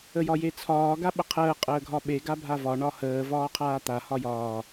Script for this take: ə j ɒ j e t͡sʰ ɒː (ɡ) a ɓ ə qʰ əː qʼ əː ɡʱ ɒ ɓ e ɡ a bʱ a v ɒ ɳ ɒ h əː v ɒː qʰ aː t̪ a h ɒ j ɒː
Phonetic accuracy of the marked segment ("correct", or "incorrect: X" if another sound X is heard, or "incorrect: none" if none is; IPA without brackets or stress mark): correct